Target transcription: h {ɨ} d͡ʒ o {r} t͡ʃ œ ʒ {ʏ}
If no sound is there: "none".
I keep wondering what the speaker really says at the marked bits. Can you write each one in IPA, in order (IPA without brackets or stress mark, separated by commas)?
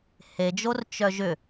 e, r, ʏ